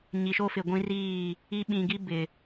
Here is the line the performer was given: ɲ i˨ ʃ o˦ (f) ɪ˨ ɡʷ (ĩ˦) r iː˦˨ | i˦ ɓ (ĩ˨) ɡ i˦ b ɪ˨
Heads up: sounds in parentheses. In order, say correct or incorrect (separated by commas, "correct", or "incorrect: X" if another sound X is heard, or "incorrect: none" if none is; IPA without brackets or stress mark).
correct, correct, correct